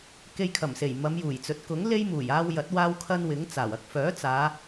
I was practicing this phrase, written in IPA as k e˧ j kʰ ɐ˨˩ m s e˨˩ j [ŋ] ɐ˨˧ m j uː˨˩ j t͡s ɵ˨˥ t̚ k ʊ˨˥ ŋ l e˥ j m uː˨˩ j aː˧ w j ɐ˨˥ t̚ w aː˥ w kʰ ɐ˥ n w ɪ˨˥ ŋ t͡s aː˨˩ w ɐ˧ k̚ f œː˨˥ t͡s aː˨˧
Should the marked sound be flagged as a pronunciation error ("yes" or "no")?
yes